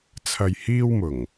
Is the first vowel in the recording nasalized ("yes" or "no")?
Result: no